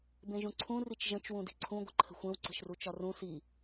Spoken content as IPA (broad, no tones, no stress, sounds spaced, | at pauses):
b ẽ ʒ ũ ǀʰ ũ r i t͡ʃ ʒ ə̃ t͡ʃ w ũ d i̤ ǀʰ ũ ɡʷ ə̤ ǃʰ ə̤ xʷ ẽ w ǀ ə̤ ʃ r u t͡ʃ ɒ r ũ s i